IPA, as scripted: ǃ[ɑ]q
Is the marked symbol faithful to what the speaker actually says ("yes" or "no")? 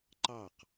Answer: yes